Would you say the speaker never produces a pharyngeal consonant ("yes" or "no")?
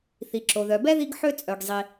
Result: no